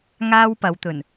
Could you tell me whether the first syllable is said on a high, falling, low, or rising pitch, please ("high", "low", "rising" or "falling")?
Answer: high